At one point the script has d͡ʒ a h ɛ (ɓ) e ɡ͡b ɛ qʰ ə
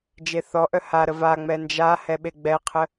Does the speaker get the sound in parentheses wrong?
no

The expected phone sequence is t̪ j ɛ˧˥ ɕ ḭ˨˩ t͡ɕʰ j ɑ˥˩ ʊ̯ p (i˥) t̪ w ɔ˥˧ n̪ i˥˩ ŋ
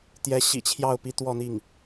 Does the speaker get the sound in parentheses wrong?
no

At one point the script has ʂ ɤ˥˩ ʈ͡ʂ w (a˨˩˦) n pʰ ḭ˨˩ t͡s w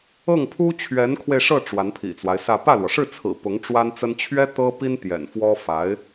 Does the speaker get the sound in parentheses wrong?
yes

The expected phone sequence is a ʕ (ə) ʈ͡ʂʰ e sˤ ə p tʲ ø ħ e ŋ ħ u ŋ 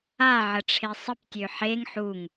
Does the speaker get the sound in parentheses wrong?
no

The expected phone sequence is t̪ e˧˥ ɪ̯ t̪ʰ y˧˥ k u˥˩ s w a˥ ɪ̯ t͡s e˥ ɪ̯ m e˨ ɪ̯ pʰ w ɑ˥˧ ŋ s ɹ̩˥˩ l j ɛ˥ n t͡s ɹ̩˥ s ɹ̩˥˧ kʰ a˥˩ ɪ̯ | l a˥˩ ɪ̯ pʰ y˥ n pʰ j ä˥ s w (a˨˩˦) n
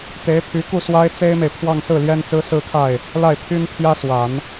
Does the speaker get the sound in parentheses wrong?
no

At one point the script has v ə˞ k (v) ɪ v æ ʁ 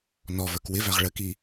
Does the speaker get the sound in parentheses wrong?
yes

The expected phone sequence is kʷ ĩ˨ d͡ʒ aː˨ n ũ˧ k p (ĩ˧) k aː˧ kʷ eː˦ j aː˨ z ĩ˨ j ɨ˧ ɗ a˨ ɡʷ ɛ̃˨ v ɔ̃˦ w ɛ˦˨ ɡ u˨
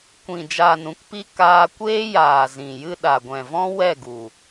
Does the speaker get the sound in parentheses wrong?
yes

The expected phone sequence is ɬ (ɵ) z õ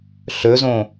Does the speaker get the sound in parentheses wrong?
no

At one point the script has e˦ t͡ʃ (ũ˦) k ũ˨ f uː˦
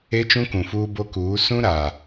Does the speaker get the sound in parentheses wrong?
no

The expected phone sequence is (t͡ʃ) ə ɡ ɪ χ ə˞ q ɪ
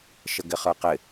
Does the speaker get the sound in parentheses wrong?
yes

